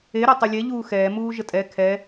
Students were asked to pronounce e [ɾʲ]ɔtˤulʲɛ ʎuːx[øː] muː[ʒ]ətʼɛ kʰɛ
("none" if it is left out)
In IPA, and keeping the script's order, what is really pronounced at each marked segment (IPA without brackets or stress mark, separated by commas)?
ɾ, ɛː, ʒ